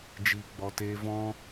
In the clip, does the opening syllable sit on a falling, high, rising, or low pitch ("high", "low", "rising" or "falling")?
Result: low